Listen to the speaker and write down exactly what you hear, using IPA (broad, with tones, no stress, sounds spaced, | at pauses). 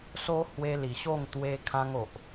s o˦ h w e˧ l i˨˩ ɕ o˥˧ ŋ t̪ w e˧ kʰ ã˧ ŋ o˨ ʔ